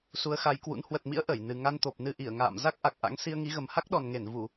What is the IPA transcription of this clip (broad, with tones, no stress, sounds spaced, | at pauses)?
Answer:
s u˨˦ ə̯ x a˨˦ j k w ṵ˧˥ n h w ə˨˩ t̚ m ḭ˧˥ ə̯ ʔ ə˧˩ j n ɨ˨˩ ŋ a˧ n t̪ o˨˩ p̚ n ɨ˧ ʔ i˧˩ ə̯ ŋ a̰ː˧˨ m z a˦˥ k̚ ʔ a˨˩ k̚ ʔ a̰˧˥ ŋ s i˧ ə̯ ŋ i˨˦ ɣ ə˨˩ m h a˦˥ k̚ ɗ ɔ˨˩ n ŋ e˧˩ n v u˧˩˨